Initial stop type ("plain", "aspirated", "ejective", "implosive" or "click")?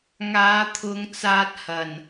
aspirated